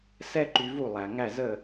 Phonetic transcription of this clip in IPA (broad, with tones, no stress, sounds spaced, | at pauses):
s ɛ˥ ǃ y˧ v u˥˩ lˠ æ˩ ŋ æ˥˩ z ə˥˩